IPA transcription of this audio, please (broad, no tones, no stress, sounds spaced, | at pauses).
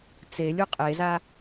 t͡s e lʲ u qʼ e z a